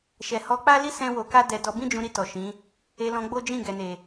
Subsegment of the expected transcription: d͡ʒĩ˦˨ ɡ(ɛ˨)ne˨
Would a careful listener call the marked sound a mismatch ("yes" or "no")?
no